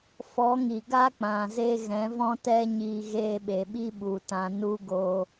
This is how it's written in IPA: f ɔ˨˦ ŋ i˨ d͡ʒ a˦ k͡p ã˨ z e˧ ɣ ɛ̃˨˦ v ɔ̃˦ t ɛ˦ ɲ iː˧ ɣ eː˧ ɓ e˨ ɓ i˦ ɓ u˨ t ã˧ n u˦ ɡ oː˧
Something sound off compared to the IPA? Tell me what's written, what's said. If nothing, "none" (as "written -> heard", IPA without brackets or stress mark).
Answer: d͡ʒ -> ɡ